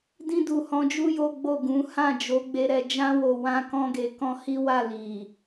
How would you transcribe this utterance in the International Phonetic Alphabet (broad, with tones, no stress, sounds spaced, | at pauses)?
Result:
d ĩ˧ d u˨ h ɔ̃˨˦ d͡ʒ u˦ j o˦ ɡ͡b o˦˨ ɡ ũ˨˦ h ã˦˨ d͡ʒ o˨˦ ɡ͡b e˦ ɾ ɛ˧ d͡ʒ ã˦ w o˧ w ã˦ k ɔ̃˦ ɡ e˧ k ɔ̃˦ h i˦ w a˦˨ l i˨